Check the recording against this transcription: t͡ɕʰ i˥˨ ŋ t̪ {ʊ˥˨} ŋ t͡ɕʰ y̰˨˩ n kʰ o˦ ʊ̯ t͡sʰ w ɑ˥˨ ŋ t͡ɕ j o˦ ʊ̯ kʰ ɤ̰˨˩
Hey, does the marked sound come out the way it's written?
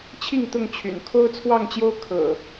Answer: yes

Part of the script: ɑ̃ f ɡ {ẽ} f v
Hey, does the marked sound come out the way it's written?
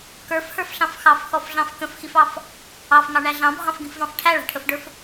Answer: no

